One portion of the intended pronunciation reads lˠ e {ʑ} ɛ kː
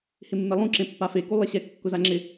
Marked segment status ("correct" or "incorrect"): incorrect